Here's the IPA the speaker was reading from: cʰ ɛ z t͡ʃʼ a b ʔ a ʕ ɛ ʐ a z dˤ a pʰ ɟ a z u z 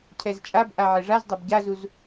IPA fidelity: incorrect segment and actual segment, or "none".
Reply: pʰ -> b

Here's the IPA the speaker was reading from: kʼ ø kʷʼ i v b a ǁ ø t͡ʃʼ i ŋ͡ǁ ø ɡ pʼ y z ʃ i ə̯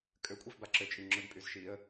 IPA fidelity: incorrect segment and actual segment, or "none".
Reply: none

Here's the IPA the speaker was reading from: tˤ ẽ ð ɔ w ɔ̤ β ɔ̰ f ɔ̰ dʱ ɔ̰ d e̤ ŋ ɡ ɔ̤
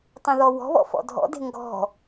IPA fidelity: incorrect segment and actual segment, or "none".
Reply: none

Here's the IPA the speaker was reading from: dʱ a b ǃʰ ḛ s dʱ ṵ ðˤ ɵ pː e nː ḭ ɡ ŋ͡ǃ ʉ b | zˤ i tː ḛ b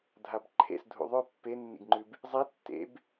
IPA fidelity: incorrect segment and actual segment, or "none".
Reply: none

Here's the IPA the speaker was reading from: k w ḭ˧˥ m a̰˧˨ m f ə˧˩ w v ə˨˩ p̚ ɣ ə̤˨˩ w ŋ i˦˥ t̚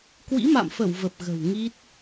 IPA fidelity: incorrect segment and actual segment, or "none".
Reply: none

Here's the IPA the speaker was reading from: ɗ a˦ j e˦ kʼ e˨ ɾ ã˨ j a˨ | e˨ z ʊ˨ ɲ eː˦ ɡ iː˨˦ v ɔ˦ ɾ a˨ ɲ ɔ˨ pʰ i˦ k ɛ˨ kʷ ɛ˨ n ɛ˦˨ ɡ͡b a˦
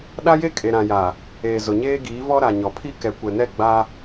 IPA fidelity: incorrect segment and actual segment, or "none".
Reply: none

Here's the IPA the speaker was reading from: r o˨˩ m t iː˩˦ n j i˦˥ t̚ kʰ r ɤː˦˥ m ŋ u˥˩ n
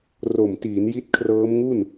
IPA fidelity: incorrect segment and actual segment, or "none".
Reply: none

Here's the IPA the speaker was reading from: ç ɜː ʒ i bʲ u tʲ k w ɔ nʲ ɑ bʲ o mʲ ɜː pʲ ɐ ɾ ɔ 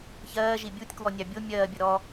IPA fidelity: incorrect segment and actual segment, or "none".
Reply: pʲ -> bʲ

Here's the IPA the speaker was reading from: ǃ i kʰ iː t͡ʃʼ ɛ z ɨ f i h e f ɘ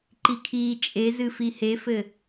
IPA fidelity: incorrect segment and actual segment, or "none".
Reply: ɛ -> e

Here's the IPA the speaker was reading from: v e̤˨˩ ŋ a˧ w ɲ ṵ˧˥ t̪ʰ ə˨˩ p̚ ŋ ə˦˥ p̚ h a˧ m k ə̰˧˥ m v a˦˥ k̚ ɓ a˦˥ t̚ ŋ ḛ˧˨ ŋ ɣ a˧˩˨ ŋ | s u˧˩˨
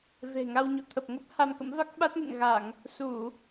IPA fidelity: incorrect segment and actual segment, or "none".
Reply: ṵ˧˥ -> ṵ˧˨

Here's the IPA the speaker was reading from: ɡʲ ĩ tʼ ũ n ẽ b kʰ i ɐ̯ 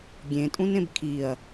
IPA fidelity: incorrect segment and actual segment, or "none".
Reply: ĩ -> ẽ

